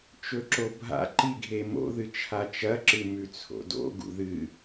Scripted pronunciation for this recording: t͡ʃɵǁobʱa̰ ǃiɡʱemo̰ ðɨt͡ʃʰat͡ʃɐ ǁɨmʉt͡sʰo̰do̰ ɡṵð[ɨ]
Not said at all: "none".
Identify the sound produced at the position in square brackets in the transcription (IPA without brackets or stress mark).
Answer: ɨ